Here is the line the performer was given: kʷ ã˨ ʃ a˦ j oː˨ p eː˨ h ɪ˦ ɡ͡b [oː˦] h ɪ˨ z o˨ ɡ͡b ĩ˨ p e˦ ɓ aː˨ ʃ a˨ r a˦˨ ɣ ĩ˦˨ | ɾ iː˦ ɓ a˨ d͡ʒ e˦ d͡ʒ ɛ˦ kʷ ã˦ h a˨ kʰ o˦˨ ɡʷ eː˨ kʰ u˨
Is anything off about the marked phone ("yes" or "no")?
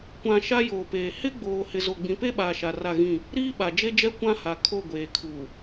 yes